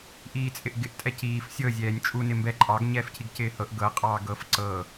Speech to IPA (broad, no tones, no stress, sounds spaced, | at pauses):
ʔ iː t͡sʼ ɪ ʔ ɡ ɪ ʔ tʼ ɛ c iː f sʲ ɤ zʲ ɛː nʲ t͡ʃʼ u n ɪ m b ɛ ǃʼ ɑ ɡ ɲ ɛː f cʰ i ɡ c ɪː h ɤ ʔ ɡ ɤ qʼ ɑː ɡ ɤ f ǀ ɤ